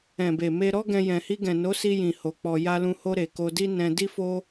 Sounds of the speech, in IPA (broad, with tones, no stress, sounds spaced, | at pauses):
ɛ̃˨ b e˨ m e˧ ɾ ɔ˦ ɡ ɛ̃˧ j ɛ̃˨ h i˧ ɡ ɛ̃˨ n o˨˦ s i˧ j ĩ˨ h o˧ k͡p ɔ˧ j a˧ l ũ˧ h o˧ ɾ e˨ k o˧ d i˦ n ɛ̃˧ d i˦ f o˦